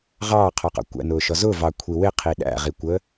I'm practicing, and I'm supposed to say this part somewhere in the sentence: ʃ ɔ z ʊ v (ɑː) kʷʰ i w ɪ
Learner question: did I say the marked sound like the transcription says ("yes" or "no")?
no